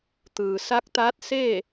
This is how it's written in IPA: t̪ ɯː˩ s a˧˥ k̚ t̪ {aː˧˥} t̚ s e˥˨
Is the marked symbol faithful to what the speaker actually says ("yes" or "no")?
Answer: yes